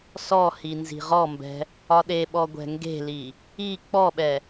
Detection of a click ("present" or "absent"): absent